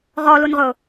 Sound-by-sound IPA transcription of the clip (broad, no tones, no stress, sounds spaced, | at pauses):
ʁ ɔ l u n ʁ ʊ